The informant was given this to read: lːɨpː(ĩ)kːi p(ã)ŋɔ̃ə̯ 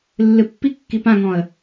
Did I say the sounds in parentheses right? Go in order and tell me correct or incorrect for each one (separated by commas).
incorrect, correct